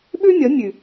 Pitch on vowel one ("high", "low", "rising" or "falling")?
high